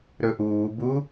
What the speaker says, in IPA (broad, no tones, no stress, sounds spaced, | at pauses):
ɾ ɵ ʔ uː b u